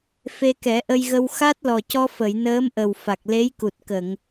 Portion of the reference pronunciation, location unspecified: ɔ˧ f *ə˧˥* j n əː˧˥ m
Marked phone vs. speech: incorrect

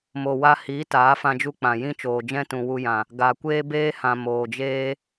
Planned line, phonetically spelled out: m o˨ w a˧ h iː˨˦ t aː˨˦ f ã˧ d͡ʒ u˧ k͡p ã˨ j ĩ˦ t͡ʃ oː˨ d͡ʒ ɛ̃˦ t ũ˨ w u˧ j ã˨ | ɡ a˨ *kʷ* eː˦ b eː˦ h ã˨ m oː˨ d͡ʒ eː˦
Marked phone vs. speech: correct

